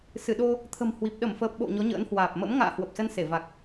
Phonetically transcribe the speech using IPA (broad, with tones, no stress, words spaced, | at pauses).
sɨ˧˩ɗo˧ | t̪ʰə̤˨˩mhwi˨˩p̚ ɗə˧˩mfəː˨˩p̚ɓo̰˧˨ ɲɔ˨˦ɲə̰ː˧˥nhwaː˨˩p̚ mə̰˧˥m ŋa̰ː˧˨ hwə˨˩p̚sə˧nse˧˩ va˨˩k̚